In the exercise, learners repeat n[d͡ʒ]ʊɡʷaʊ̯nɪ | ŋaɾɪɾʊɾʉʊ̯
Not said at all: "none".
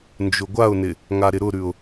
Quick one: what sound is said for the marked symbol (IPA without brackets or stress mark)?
d͡ʒ